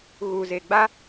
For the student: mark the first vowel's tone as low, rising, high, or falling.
low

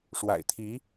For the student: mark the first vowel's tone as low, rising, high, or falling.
low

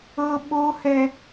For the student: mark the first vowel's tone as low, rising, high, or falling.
high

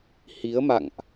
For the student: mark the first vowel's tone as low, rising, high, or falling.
rising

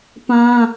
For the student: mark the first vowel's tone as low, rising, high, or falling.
high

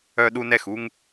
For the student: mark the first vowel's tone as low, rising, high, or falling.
high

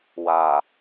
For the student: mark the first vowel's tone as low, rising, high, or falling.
low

